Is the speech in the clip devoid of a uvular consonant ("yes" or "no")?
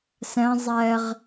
no